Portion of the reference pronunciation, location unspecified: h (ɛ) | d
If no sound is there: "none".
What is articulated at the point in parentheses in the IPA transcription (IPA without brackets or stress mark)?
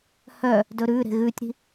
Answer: œ